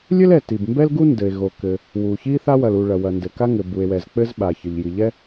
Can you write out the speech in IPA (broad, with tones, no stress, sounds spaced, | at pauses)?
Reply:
lʲ ɘ˥ l ɛ˩ t i˩ b m b ɛ˥ l ɡ u˥ n d ɘ˩ e̯ ɣ o˩ k ɘ˩ | w u˩ ç i˥ θ a˥ w ɐ˩ l u˩ ɭ ɐ˩ w ɐ˩ n d ɘ˩ k a˥ ŋ ɘ˩ b u˩ e̯ w ɛ˩ z k͡p ɘ˥ z ɓ a˩ ç ɘ˩ ʎ j i˩ ʎ ɛ˥